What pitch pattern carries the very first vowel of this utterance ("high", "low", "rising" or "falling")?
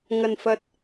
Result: low